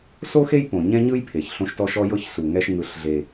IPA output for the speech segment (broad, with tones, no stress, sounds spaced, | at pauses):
s o˦ x e˦ j p õ˨ ɲ ɛ̃˦ ɲ ɯ˦ j pʰ e˨ ç ɬ õ˦ ʃ t ɔ˦ ʃ ɔ˦ j ɤ˦ ç s u˨ ŋ ɛ˦ ʃ ŋ ɯ˦˨ ɬ ɮ e˦